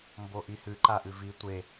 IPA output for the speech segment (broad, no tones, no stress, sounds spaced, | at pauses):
m b o ʔ i h ʉ ǃ a ʔ ʉ v i tʷ e